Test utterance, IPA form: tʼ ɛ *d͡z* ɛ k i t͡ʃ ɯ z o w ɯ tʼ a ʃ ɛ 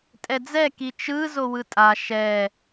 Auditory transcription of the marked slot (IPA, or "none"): d͡z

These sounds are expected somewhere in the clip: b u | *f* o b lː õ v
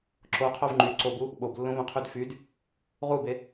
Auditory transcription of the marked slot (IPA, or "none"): ɓ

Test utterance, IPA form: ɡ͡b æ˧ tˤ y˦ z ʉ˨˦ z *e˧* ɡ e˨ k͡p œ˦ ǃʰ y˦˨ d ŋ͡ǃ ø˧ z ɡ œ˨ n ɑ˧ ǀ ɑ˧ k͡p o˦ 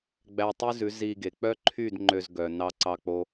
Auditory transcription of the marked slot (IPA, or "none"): i˧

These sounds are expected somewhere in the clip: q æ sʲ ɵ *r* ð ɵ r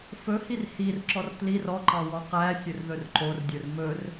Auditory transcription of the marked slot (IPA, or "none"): r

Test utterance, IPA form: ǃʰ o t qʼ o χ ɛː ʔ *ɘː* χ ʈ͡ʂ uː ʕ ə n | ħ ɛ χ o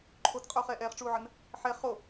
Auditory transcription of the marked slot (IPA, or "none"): ɛː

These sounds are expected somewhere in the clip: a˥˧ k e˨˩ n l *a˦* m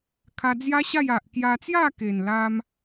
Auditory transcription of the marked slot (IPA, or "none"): a˦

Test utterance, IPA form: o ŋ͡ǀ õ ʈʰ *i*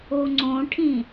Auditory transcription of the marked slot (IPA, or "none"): ĩ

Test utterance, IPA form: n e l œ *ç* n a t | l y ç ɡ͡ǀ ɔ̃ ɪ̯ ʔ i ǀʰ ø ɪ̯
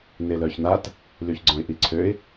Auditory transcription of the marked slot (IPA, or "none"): ç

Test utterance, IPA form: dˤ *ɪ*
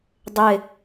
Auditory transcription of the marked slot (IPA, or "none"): ɪ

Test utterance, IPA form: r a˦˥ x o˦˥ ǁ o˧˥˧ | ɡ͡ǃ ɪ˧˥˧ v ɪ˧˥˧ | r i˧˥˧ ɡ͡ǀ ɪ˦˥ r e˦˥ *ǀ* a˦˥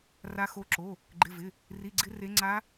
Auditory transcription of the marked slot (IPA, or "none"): ŋ͡ǀ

